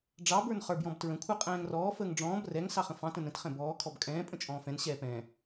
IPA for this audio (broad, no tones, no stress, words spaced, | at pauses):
ɖ͡ʐɑ bə˞nχə˞bjɔ̃btɹə̃ kʷʰə˞qʼɛ̃ːŋrɔː fəːŋɖ͡ʐɔ̃ːb rɛŋ sɑχə̃fɑ̃t ə̃nə̃t χɛ̃bɔː kʰɔbkʼɛ̃ː pʼə̃t͡ʃʼɔ̃ːfɛ̃n ɕɛːpɛ̃